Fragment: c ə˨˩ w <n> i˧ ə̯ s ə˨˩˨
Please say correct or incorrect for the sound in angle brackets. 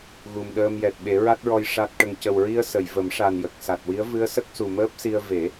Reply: incorrect